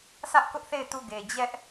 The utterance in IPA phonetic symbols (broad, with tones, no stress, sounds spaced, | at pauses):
sʰ ä˦ ʔ k ʊ˦ ʔ θ e˦˨ ɪ̯ t u˦˨ ɡ e˨ d͡ʑ ɛ˦ ʔ